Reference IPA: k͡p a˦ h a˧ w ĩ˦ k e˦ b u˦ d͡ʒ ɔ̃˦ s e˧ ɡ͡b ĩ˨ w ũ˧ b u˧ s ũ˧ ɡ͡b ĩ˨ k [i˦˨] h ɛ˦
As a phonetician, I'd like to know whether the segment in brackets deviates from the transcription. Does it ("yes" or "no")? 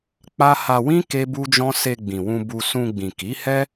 yes